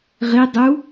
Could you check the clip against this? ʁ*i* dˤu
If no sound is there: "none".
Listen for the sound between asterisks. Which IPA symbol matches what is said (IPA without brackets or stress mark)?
i